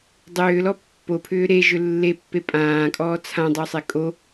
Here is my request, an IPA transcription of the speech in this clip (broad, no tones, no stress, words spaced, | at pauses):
dˤʏːlɔ pːopʰʏː ɾeʒʏ lːepːe pʼãːkʼɔː t͡sʰãdˤosˤe kʼo